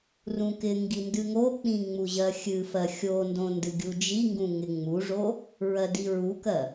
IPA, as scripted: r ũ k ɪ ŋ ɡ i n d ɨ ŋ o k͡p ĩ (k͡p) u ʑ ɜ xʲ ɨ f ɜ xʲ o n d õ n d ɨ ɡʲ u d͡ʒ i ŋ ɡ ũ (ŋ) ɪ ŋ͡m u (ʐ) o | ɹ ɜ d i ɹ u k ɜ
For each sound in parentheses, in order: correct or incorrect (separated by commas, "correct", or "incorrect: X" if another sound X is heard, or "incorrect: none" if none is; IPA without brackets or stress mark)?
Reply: incorrect: ŋ͡m, correct, correct